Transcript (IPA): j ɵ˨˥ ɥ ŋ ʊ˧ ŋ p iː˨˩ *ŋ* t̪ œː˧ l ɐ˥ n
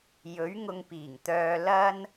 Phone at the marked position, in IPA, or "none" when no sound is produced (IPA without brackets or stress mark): ŋ